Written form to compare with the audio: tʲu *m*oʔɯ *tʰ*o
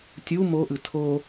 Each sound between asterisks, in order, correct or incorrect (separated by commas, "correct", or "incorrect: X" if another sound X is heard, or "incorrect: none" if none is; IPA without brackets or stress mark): correct, correct